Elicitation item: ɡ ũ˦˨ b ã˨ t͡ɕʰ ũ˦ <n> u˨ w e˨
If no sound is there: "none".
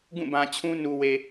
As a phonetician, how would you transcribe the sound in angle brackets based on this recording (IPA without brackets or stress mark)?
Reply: n